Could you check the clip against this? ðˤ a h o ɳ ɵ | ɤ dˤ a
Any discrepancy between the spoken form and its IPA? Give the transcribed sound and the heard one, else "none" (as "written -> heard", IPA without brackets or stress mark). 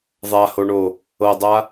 ɵ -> o